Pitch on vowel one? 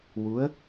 rising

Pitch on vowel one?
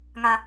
low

